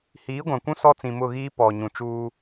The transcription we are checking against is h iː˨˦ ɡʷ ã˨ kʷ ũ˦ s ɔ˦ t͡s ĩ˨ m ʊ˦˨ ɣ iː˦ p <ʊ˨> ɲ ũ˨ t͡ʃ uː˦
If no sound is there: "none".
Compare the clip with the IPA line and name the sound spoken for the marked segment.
ɔ˨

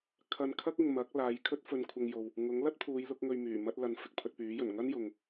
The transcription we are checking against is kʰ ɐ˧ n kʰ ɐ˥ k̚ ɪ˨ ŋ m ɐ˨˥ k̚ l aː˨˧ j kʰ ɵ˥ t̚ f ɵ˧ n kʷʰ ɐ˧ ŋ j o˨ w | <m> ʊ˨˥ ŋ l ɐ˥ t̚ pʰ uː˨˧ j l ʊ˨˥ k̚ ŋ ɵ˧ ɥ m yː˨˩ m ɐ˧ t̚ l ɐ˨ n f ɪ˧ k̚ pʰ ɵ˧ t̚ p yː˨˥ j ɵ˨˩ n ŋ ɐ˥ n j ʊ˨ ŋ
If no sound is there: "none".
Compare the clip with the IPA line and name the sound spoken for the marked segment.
ŋ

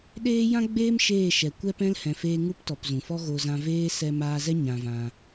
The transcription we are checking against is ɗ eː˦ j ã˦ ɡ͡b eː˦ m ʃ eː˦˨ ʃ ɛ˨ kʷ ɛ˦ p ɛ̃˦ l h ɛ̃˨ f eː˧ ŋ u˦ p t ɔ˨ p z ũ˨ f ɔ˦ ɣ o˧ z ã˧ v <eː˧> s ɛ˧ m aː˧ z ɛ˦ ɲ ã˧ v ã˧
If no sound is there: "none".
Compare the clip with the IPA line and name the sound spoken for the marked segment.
eː˦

